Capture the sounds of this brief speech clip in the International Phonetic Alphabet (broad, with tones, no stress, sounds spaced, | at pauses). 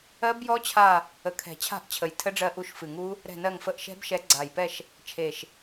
ɜ˦˥ b j ɔ˦˥ t͡ɕʰ a˦˨ | ə˨˩˦ kʰ ɛ̤˨˩˦ t͡ɕʰ a̤˦˨ ʔ t͡ɕʰ ə˨˩ j tʰ ə˦˥ ɖ͡ʐ ɜ˦˨ ʔ u˦˨ ʃ f ɨ˨˩ ŋ u˦˥ | ɾ ɛ̤˦˨ n ɜ˦˨ ŋ f ə˦˨ ʔ ʃ ɛ̤˦˥ b ʃ ɛ˨˦ ɡ͡ǀ a˨˩ j p ɛ˦˨ ʃ | t͡ʃʰ e˨˩ ʃ